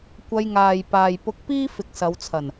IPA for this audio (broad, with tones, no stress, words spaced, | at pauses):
kʷɐ˧jŋaː˨jpaː˨j pʊ˧k̚piː˥ fɪ˨k̚sɐ˨˧wt͡sʰɐ˨˩n